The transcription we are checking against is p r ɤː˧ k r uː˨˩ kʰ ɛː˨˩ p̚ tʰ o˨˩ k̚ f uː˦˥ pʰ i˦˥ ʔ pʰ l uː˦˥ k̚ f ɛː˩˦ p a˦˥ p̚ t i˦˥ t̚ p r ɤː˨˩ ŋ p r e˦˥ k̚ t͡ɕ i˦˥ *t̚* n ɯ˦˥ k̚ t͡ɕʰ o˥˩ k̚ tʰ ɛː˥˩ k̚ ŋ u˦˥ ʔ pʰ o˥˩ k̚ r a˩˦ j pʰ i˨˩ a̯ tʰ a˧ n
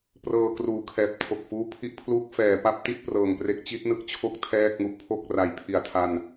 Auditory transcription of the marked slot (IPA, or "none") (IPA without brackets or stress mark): t̚